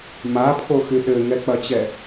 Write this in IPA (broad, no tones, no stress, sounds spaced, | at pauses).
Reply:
m a pʰ o x y ɗ ɘ ŋ ɛ k͡p ɐ t͡ɕ ɛ